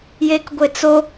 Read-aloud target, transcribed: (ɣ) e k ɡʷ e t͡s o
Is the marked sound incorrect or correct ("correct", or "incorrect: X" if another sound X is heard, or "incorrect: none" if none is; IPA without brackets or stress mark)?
incorrect: j